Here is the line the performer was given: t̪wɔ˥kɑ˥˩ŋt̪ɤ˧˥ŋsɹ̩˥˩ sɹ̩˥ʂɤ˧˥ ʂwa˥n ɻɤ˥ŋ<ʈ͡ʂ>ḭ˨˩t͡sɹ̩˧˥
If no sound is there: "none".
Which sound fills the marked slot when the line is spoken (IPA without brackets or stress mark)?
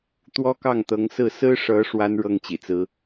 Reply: t͡ɕ